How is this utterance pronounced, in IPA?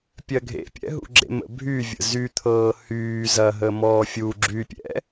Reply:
pʲ ɜ ɡʱ ḛ pʲ ɛ̰ ɦ ṵ ɡ͡ǁ ḛ m ə̰ bʱ y vʲ ə̰ z y t̪ʰ ɤː h yː z ɐ ɦ ə m ɔː fʲ u ɡ͡ǁ y pʲ ɛ̰

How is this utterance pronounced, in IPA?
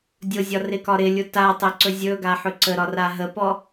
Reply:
dʲ ʊ zʲ ɒ r ɪ k ɒ ɾ ɪ lʲ ʊ t a tˤ ɛ ǀ ɵ zʲ ɵ ɡ a ħ ɵ ǀ ə ɾ ɒ r a ɦ ə p ɔ

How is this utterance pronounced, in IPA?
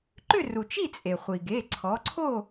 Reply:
ǃ ʏ˥˨ r u˩ t͡ʃ i˥˨ t͡sʼ e˩ χʷ i˩ ɡ e˩˧˩ ǀʰ ɔ˩˧ ǀʰ o˥˨

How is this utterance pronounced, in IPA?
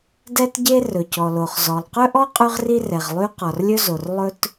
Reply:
d ɛ˥ t ɟ e˥ r ɵ˩ c ɔ˩ l o˩ χ z ɔ˩ lˠ q ɵ˥ ʔ ɔ˥ qʼ ʉ˥ ʁ r i˥ r ɛ˩ ʁ lˠ y˥ q ɔ˩ r lʲ ɵ˥ z o˩ r lˠ ɵ˥ t

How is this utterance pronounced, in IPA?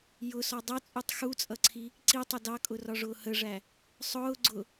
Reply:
j ʊ s ɔ dˤ ʌ t͡sʼ u tˤ x u t͡sʼ ʌ ǀʰ i | ǀ i tˤ ʊ d ɑ kʼ ʊ r ɒ ʐ ʊː h ə ʐ æ | sˤ ʊː ɡ͡ǀ ʊ

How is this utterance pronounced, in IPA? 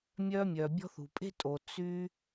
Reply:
mʲ œ˧ mʲ œ˩ bʲ ɔ̤˧ θ ṳ˩ pʼ e̤˧ tʼ o˩ t͡s y˧

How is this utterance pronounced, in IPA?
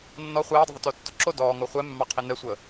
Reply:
nː ɔ χʷ ɛː dˤ ə ðˤ ʊ t o tː ʊ ǁ o d ɔː ŋ o χʷ ɛ mː ɑ qʰ i n ɛ sʷ əː

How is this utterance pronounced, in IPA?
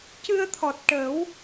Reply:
c ɨ˧ ə̯ t̪ʰ ɔ˨˩ t̚ ʈ ə˨˩˦ w

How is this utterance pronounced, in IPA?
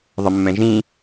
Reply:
ðˤ ə mː ɛ̃ ʒ ĩ

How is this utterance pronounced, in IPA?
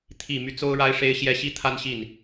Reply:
t̪ʰ i˨˩ m y˦ t͡s o˥ ʊ̯ ɻ a˥ ɪ̯ ʂ e˥ ɪ̯ ɕ j ɛ˥ ɕ i˥ t̪ʰ a˥ n ɕ i˥˩ n

